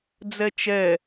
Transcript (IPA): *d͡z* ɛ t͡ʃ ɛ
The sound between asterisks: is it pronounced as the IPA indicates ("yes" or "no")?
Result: yes